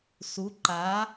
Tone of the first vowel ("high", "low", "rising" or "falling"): rising